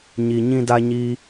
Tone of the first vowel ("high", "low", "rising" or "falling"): low